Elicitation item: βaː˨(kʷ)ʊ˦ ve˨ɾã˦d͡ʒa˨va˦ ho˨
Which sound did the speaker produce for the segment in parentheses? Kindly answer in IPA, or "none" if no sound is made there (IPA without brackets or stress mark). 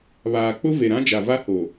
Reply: k͡p